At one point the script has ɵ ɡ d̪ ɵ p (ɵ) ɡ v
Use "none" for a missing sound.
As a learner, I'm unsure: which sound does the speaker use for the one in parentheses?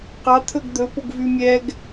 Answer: o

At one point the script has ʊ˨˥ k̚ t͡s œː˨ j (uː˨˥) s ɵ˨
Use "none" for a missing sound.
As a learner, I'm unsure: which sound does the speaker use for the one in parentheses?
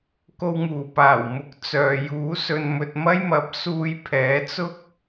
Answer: uː˨˥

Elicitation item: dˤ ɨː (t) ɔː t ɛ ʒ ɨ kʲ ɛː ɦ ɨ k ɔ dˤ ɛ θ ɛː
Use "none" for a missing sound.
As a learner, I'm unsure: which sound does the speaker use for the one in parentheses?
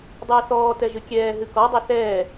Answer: θ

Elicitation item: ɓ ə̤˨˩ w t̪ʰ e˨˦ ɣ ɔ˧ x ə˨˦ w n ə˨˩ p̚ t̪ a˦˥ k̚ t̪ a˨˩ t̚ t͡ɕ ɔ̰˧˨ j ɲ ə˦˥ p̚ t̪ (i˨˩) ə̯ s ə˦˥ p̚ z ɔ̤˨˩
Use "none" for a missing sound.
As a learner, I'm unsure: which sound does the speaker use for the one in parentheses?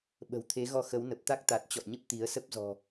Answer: i˨˦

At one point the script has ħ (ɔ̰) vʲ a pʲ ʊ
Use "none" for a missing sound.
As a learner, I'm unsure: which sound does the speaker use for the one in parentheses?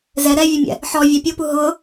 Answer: ɔ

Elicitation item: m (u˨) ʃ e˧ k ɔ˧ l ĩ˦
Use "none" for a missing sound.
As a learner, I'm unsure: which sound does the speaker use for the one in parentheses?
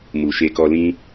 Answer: u˨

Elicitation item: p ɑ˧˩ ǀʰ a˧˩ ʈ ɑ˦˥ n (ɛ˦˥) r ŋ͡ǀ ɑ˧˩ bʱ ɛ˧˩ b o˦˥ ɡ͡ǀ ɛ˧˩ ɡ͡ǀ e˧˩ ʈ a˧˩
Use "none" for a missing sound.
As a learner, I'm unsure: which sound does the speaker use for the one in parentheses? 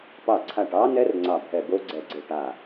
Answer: ɛ˦˥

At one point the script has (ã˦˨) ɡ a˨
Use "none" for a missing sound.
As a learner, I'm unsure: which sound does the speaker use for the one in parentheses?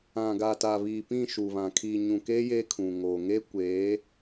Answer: ã˨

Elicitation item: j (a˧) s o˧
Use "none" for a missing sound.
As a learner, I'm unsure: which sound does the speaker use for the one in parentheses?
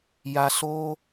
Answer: a˧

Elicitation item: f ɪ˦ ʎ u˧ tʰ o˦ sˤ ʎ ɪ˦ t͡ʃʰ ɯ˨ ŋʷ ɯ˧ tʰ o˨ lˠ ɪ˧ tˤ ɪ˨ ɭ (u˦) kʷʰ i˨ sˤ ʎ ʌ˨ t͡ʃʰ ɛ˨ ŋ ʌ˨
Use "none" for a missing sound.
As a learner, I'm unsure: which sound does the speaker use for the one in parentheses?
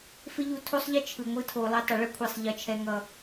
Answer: ʏ˦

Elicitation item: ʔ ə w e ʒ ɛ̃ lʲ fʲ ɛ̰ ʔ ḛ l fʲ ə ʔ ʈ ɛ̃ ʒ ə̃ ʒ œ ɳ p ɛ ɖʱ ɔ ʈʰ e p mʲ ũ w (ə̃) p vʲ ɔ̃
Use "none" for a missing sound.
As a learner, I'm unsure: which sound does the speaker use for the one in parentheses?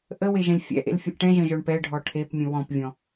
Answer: ɔ̃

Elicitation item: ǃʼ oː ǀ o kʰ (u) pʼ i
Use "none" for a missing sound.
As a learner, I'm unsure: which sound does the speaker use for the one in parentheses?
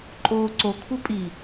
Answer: u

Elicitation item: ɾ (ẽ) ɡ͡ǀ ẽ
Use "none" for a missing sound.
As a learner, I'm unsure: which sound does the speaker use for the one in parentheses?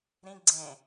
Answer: ĩ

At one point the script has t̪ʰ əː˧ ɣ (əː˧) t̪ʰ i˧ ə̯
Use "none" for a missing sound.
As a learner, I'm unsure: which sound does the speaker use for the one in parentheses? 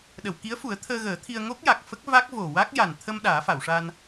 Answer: əː˨˩˦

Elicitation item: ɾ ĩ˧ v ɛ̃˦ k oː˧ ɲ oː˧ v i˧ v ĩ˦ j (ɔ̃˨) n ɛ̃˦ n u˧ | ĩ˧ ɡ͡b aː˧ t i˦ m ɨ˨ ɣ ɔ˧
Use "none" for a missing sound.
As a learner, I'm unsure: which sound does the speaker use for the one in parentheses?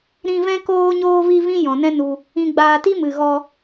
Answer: ɔ̃˨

